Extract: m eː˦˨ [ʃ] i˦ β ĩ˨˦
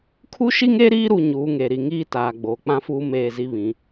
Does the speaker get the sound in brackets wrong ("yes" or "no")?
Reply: yes